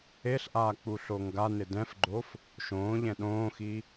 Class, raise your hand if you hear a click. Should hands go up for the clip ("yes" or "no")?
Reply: yes